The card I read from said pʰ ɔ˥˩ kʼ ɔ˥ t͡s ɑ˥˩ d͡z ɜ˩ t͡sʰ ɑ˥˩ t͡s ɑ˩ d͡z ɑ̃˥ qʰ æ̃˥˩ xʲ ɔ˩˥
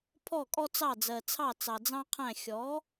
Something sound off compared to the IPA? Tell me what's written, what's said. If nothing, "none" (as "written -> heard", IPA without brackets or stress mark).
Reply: none